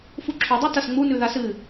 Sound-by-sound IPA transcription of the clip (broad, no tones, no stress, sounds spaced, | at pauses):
f u ǁʰ o dˤ ʉ t ɐ s ŋ͡m u n ʉ ð a s ɨ